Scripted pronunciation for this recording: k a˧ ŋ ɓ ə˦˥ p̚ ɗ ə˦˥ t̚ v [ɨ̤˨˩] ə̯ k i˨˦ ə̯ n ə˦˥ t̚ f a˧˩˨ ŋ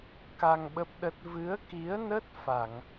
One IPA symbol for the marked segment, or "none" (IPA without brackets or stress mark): ɨ˨˦